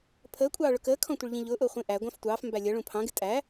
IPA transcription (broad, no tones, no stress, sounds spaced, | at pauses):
pʰ əː kʷʼ ɑː ɭ ʊ k əː kʰ ɔ̃ tʷ ə ɭ ʎ ĩ ʎ ʊː ʔ ʊː χʷ ĩ ʔ æ ɡʷ ɑ̃ f tʷ ɑː f m b æ lʲ ʌ ɭ ũ pʰ ɑ̃ ɡ ɪ tʼ æ